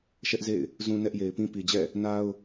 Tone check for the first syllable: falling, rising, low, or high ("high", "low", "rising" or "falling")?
high